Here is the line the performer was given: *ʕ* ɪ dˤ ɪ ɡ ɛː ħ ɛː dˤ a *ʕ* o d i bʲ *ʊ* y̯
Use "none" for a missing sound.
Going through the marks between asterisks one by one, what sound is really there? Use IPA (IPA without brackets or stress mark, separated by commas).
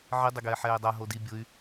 ʕ, ɦ, ʊ